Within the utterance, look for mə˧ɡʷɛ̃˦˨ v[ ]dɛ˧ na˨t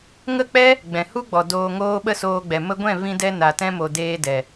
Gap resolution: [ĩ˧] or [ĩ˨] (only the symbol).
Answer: ĩ˧